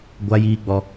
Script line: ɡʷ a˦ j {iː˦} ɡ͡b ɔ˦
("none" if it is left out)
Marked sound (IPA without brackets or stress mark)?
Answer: iː˦